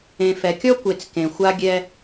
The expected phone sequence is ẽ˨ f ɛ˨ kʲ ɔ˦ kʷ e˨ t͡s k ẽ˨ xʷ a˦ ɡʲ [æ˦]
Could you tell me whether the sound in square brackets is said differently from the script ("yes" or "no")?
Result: yes